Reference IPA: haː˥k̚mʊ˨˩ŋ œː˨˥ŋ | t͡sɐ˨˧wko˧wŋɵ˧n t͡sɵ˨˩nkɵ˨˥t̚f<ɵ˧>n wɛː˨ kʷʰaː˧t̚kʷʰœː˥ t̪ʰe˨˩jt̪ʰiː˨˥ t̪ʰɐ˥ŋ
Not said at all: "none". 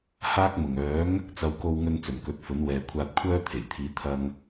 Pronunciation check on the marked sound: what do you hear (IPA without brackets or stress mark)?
ɵ˨˥